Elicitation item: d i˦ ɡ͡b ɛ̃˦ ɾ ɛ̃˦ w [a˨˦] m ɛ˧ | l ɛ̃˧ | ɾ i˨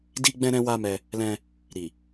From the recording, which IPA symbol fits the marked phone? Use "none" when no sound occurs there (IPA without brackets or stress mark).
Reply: a˦